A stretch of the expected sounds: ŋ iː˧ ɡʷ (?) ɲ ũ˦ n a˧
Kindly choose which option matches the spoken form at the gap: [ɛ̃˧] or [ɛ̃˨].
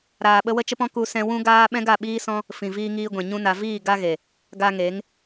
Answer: ɛ̃˨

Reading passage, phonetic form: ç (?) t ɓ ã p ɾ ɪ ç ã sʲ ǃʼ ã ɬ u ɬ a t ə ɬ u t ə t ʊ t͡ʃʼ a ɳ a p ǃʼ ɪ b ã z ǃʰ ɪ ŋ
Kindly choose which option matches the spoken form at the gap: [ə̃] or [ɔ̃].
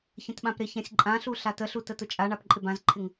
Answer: ə̃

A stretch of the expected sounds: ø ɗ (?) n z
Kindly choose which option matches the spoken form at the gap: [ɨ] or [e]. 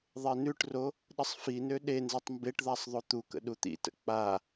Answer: e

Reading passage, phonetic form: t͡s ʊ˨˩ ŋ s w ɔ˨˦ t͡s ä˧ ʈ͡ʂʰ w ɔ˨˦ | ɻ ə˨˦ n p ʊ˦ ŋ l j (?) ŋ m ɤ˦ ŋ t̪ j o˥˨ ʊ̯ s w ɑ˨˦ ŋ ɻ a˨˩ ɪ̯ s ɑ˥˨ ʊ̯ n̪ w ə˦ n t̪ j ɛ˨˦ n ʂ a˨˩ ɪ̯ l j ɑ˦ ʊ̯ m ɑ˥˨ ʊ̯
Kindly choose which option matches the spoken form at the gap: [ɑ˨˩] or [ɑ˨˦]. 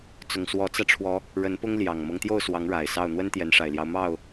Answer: ɑ˨˩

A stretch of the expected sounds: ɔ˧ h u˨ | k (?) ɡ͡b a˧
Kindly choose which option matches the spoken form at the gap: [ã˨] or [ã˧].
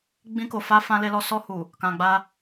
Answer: ã˨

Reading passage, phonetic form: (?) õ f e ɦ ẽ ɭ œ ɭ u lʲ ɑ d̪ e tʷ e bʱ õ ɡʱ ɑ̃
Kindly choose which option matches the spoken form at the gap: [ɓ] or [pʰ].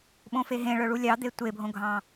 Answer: ɓ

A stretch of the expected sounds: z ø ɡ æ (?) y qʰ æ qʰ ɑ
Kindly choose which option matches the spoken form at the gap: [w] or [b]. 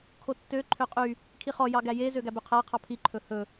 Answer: b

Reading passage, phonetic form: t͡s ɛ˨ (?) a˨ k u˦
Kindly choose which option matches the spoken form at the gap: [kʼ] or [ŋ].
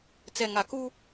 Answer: ŋ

